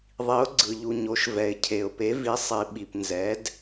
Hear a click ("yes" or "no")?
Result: yes